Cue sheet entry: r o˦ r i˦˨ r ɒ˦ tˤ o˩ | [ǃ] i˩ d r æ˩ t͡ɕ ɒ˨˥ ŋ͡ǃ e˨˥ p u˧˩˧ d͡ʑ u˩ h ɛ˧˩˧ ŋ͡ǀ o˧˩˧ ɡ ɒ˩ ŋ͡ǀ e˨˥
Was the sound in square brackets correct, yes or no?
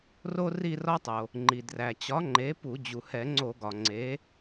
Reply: no